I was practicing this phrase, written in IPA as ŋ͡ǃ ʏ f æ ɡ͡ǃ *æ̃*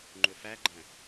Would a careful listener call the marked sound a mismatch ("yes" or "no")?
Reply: no